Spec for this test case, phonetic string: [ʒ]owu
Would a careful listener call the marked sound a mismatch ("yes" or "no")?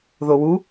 yes